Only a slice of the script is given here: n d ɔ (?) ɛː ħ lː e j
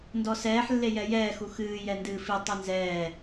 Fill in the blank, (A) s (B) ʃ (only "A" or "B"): A